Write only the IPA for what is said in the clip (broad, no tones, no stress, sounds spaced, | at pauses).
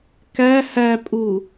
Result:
k æ h æ pʼ u